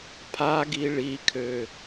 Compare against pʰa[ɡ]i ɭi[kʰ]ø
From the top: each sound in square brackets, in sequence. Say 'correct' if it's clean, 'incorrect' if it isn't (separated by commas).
correct, correct